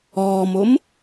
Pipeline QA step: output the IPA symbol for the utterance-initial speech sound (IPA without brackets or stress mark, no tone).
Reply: ɔː